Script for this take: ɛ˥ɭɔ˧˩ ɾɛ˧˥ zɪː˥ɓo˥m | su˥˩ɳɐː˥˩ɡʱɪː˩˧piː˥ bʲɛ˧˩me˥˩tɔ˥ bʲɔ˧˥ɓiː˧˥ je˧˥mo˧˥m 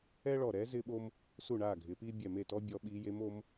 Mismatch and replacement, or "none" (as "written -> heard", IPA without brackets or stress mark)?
ɐː˥˩ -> aː˥˩